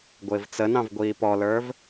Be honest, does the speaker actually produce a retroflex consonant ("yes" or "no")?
no